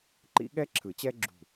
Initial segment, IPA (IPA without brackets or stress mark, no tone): ǃ